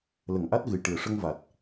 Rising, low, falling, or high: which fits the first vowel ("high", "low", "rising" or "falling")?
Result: low